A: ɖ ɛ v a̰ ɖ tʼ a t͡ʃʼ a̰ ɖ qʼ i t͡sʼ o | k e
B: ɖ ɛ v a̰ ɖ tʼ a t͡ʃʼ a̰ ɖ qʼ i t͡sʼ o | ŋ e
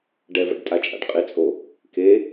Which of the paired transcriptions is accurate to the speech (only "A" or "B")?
A